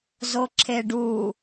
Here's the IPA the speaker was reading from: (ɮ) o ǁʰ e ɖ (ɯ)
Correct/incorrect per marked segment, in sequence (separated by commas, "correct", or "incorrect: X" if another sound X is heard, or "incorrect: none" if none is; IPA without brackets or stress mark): incorrect: z, incorrect: u